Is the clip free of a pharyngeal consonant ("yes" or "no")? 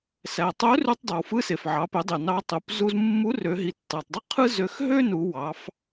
no